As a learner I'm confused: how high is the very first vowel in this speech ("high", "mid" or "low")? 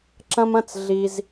low